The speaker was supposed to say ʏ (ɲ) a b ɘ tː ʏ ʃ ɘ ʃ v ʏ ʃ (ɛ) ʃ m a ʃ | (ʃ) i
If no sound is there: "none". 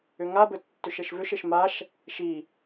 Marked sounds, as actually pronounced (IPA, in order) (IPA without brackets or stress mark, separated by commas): ŋ, ɘ, ʃ